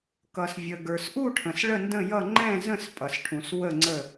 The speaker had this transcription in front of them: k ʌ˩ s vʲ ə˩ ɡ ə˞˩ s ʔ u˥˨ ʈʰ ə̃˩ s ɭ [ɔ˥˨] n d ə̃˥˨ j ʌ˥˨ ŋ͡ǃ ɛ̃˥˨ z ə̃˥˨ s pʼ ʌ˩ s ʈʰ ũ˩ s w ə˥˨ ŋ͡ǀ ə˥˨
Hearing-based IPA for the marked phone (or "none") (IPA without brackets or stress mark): ə˥˨